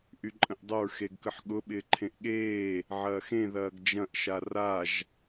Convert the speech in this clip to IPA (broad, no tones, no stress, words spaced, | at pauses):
ʔyǃʼə̃ʔdˤəɹ xeɡkəħɠʊ ɓɪːǃʰẽʔɠeː | ʕɐːxẽ ðɐːɡd͡ʒɐ̃ʔ ʃaraʒ